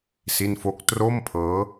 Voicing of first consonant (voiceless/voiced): voiceless